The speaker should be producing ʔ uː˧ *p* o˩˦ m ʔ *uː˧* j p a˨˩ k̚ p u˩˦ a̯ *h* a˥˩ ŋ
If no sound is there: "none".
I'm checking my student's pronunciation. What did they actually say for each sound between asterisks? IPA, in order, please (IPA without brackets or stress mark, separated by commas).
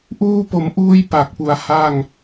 p, uː˧, h